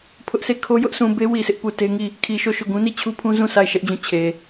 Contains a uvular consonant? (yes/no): no